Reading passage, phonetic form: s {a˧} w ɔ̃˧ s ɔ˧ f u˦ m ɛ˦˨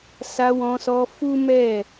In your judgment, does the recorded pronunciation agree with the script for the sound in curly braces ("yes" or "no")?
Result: yes